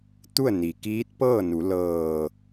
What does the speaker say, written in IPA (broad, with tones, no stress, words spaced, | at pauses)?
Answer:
t̪u˥˨ə̯ ni˩kiː˧˥t̚pɤː˥˨nu˩˧ lɤː˧˩